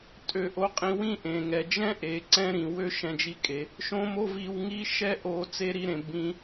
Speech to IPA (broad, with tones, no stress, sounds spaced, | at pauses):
tʼ ø˧ ʔ o˧ qʼ ĩ˧ w ĩ˥ ʔ ẽ˩ ŋ ɛ˩ d͡ʒ ɛ̃˥ ʔ e˩ ǀ ɛ̃˧ ɾ ĩ˩ w ø˧ ʃ ɛ̃˧ d͡ʒ i˧ kʼ e˩ | ʃ õ˥ m o˥ v i˧ w ŋ i˥ ʃ ɛ˥ ʔ o˧ t͡s e˥ ɾ i˧ ɾ ẽ˩ b ĩ˧